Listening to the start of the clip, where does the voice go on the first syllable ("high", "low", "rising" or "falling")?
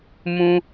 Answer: high